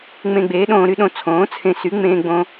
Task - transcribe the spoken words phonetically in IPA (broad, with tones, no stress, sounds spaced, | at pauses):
ŋ͡m ẽ˧ ɡ͡b eː˩˥ ɗ õː˧ ɾ y˧ ɗ õ˧ t͡sʰ õː˩˥ t͡sʰ ẽ˧ s y˩˥ ŋ͡m ẽː˧ ɡ͡b õ˧